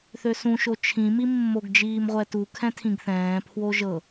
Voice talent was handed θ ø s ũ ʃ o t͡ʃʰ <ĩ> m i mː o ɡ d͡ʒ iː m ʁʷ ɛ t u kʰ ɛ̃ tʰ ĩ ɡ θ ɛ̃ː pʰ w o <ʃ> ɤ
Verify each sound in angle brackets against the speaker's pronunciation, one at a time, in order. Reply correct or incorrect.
correct, incorrect

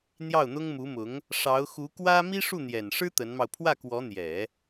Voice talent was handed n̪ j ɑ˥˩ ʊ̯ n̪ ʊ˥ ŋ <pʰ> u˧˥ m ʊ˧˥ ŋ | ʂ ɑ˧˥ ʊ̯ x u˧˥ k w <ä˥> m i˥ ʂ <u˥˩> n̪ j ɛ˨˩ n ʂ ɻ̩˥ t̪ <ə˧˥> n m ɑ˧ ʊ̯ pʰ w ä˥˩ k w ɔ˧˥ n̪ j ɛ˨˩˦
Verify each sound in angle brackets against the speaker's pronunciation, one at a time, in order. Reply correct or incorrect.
incorrect, correct, correct, correct

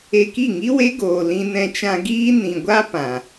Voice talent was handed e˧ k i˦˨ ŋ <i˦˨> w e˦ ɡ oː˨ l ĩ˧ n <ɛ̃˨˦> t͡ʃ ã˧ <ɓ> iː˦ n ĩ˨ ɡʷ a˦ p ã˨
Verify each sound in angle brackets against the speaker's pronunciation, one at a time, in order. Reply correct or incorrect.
incorrect, incorrect, incorrect

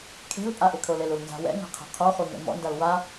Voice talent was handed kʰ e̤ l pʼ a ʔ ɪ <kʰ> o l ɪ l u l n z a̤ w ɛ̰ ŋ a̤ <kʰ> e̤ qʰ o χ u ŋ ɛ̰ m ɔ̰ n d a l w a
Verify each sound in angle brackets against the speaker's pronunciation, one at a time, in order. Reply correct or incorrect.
correct, incorrect

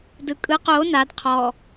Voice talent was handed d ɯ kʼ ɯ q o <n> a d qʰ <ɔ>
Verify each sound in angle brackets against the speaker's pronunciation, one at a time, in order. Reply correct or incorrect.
correct, correct

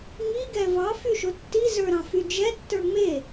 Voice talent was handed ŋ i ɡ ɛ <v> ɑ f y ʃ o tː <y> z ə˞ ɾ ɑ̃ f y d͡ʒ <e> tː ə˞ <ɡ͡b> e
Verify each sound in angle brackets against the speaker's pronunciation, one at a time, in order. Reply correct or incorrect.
correct, incorrect, incorrect, incorrect

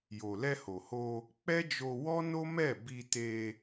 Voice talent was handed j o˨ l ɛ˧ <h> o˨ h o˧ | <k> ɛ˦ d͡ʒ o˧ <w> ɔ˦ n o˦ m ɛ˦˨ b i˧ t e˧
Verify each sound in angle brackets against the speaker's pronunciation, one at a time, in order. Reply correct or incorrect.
correct, incorrect, correct

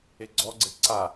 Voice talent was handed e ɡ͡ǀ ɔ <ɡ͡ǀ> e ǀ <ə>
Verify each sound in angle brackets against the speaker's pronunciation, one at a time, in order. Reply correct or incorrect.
correct, incorrect

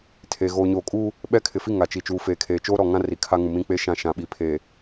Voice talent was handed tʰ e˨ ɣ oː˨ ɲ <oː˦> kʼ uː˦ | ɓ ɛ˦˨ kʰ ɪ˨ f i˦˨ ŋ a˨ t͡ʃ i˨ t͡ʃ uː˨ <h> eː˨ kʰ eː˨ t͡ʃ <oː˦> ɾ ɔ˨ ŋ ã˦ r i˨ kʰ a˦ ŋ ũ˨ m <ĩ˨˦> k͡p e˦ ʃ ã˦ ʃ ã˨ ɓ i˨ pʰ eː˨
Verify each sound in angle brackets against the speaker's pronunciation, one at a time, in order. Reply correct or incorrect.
incorrect, incorrect, correct, incorrect

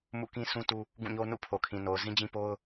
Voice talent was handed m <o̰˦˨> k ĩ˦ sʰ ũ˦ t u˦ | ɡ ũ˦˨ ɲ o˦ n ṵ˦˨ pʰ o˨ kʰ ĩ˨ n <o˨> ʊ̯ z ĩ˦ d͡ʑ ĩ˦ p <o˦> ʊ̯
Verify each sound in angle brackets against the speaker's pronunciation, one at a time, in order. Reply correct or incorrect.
incorrect, correct, correct

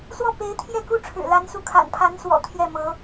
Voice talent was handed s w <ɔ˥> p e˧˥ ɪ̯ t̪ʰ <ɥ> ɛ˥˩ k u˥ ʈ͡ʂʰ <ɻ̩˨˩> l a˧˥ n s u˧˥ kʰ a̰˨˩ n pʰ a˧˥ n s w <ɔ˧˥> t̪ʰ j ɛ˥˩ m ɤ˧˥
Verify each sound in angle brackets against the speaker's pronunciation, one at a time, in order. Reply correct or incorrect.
incorrect, incorrect, correct, incorrect

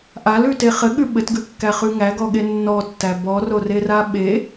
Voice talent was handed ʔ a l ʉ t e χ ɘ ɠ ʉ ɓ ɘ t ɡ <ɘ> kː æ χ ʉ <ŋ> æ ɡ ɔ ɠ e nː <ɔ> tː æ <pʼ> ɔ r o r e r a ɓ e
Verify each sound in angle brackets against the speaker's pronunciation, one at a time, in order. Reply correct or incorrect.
incorrect, correct, correct, incorrect

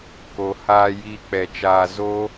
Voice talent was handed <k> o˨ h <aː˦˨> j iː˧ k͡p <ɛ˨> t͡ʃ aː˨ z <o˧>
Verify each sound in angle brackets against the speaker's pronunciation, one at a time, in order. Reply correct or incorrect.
correct, incorrect, correct, incorrect

